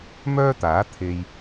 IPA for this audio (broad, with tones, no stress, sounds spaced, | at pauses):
m œː˥ t̪ aː˨˥ t̪ʰ e˨ j